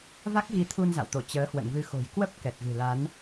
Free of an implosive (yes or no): yes